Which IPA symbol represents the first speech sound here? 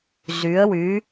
z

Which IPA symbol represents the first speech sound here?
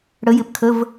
ɽ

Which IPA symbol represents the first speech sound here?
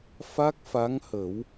f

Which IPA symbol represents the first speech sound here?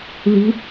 ð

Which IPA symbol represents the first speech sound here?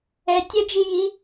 ɛ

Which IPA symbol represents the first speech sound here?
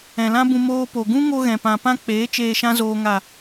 ɛ̃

